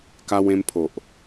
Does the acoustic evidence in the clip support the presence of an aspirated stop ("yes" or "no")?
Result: yes